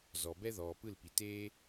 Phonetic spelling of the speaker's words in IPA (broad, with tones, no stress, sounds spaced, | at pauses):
z ɔ˨ b ɛ˦ ð ɔː˨ p ɯ˦˨ l p i˨ t eː˦